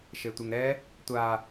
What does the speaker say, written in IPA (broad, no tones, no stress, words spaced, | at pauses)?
ʃetʷɪŋɾɛ | tʷa